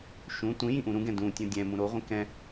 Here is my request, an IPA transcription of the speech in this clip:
ʃũ tʷĩ jĩʔũɾũɡɛ̃ dũtʲõ dʲɛ̃mũ ɾoʁʷĩ kɛ̃

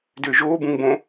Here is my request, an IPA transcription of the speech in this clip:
dʏːʒoː bũŋbõ

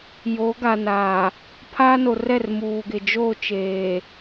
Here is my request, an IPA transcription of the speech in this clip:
jo˨˦ɡa˨ naː˨ | pʰaː˦no˨rɛ˦˨r muː˨ɡɪ˨ d͡ʒo˦˨t͡ʃeː˨

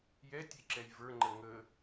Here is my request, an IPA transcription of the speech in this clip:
jɛtʲe ǁɛjvə˞ŋ͡ǃə ŋə

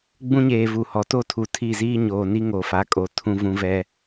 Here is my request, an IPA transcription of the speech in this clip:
ɡ͡bũ˦ɲeː˨ vu˨hɔ˨ to˦tʰu˨ tʰi˦˨ziː˦ɲoː˨ ni˦ ŋo˨fa˨˦kʼo˨ tʰũ˦vũ˦vɛ˦

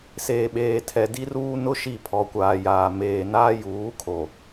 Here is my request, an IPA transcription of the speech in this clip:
seː˨ɓeː˨ tʰɛ˨ di˦ruː˦ nʊ˦ ʃi˦˨pʰɔ˨kʷaː˨jaː˨ meː˨ naː˦juː˨˦kʰo˨

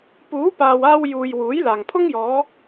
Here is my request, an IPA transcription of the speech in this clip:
puː˨˥paː˨waː˧wjuː˨j wuː˨˥jlaː˨ŋpʰʊ˥ŋ jɔː˨˧

